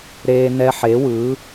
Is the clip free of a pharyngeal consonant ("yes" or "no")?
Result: no